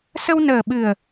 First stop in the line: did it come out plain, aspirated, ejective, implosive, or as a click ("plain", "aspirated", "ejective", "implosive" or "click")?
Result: implosive